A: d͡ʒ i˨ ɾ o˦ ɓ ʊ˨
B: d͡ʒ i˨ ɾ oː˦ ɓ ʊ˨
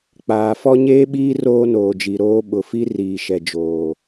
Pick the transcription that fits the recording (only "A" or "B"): B